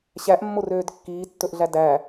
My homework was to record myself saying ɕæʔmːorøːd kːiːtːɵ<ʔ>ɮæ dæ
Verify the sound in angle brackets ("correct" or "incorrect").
correct